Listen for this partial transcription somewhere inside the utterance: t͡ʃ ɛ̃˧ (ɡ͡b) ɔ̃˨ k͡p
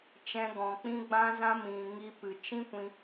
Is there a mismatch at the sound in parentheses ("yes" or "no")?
yes